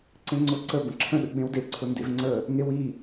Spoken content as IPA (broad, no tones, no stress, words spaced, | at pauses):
ǀẽŋ͡ǀʊ ǀə bə̃ǁʰə̃ ɗə̰ɡ͡bẽwde ǀʰʊndḛvŋ͡ǀə | ŋewi